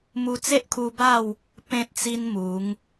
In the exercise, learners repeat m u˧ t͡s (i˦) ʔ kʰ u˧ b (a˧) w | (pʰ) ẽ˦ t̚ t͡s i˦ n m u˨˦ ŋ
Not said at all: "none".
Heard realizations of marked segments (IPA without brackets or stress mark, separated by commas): e˦, a˥˧, p